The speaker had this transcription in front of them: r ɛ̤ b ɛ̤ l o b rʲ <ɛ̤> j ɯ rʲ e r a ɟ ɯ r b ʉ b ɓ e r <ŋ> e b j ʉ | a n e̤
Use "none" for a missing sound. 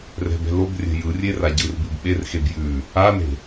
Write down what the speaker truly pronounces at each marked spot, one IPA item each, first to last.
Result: ɛ̤, x

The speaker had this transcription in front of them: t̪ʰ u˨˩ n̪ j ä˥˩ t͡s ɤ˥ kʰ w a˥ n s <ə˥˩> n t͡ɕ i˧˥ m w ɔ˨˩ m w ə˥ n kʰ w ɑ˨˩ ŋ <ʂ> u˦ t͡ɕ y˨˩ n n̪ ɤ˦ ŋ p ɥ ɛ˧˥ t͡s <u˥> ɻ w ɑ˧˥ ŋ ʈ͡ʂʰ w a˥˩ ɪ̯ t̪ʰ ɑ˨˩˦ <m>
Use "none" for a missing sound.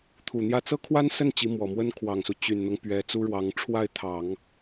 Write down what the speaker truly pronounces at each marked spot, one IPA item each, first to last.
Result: ə˥˩, s, u˥, ŋ

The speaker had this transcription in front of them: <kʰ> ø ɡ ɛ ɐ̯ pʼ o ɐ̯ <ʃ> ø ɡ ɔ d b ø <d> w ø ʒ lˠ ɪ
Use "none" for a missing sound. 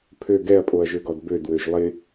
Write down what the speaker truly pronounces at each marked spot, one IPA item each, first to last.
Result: pʰ, ʒ, d

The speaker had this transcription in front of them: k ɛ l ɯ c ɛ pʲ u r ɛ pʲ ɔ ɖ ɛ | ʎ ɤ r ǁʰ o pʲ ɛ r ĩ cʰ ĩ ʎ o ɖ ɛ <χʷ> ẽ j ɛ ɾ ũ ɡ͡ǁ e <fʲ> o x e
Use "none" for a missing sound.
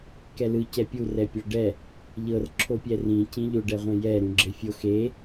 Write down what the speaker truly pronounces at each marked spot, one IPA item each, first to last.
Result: ʁʷ, fʲ

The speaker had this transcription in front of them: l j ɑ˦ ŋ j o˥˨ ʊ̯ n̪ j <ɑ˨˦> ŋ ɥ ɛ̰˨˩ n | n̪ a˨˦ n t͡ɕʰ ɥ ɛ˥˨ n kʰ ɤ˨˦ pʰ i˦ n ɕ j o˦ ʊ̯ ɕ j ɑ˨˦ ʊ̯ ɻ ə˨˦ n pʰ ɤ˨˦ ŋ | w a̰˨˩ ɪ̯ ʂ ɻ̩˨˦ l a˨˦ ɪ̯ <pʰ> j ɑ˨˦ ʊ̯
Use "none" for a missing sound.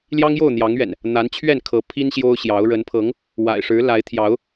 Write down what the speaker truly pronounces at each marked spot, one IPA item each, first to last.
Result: ɑ˨˦, t̪ʰ

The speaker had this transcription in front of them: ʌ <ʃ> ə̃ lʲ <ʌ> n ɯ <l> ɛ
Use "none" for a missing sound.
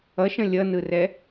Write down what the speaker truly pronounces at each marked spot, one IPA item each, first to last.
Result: ʃ, ʌ, r

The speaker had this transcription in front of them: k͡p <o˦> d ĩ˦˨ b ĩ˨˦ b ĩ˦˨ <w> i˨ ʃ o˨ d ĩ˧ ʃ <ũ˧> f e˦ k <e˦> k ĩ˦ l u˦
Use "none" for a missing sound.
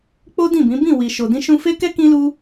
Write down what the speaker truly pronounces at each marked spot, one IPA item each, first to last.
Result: o˦, w, ũ˧, ɛ˦

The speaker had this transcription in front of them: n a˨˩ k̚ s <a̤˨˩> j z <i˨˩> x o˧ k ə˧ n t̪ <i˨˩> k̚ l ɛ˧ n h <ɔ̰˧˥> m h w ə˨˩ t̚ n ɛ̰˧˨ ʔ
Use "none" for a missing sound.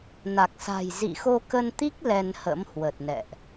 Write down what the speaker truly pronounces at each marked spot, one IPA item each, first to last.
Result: a̤˨˩, ḭ˧˨, i˦˥, ə̰˧˥

